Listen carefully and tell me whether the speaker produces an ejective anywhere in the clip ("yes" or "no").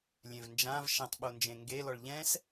no